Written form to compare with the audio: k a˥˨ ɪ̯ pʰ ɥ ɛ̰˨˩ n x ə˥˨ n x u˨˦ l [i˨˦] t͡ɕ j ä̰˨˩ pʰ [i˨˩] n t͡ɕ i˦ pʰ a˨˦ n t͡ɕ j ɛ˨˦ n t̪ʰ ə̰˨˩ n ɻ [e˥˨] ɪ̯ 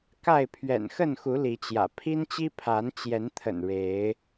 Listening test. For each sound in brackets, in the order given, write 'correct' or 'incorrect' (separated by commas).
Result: correct, incorrect, incorrect